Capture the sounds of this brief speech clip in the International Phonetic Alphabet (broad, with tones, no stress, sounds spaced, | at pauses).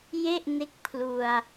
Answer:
j e˥˩ ʔ n e˦˥ k̚ pʰ l u˧ a̯